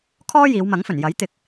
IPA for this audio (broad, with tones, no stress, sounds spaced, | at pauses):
kʰ ɔː˥ j iː˨˧ w m ɐ˨˥ ŋ f ɵ˨˩ n j ɐ˨˥ j t̪ ɪ˧ k̚